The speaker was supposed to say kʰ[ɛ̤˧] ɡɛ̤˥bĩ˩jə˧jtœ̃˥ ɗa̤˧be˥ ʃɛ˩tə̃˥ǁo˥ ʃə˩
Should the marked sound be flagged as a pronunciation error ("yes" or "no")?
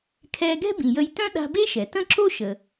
yes